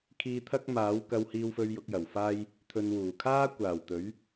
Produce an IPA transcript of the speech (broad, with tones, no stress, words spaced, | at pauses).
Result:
kʰiː˧t̪ʰɐ˥k̚maː˨˥w kɐ˧whiː˧wfɵ˧ɥ jʊ˨˥k̚jɐ˨˩wfaː˥j | t̪ʰɵ˧nwuː˨˩ kʰaː˥kʷaː˨˩wt̪ɵ˨˥ɥ